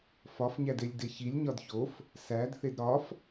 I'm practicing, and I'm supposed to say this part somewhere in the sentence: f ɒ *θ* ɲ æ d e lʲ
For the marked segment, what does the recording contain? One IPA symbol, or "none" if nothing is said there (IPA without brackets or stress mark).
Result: f